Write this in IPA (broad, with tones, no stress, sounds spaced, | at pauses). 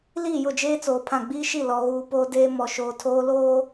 l iː˦˨ j ʊ˦˨ d͡ʒ eː˦ t͡s oː˨ pʰ ã˦˨ ɡ͡b iː˦ ʃ i˦˨ l ɔ˨ ɣ uː˨ p oː˦ d eː˦ m ɔ˨ ʃ oː˨ tʰ oː˦ l oː˦